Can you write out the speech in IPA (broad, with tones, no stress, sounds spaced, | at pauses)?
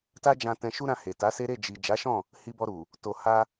t a˦ d͡ʒ ã˧ t ɛ̃˧ ʃ u˦ ɾ ã˧ h e˨ t a˨˦ s e˦ ɾ e˦˨ d͡ʒ i˨ d͡ʒ a˨˦ ʃ ɔ̃˦˨ | h i˧ b ɔ˧ ɾ u˨ | t o˨ h a˧